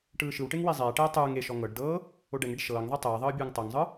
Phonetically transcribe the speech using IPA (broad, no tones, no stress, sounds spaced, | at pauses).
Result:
ʈ ɯː ʃ ɯ w ʈ e ŋ w i zˤ ɛː ʈ ɛː tˤ ɯː ŋ e ʃ ɔ ŋ ɤ ɖ d ɤː | o ɖ ɛ ŋ e ɖ ʃ ɤː ŋ ðˤ i tˤ ɛː ðˤ ɤː bʲ ɯː ŋ tˤ ɤ ŋ zˤ ɯ